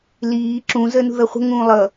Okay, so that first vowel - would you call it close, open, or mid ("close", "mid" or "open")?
close